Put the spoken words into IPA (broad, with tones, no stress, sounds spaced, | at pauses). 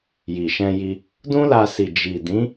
j i˨ ʃ ɛ̃˧ j i˧ | d ũ˦ l a˧ s i˨ d͡ʒ i˨ d ĩ˨˦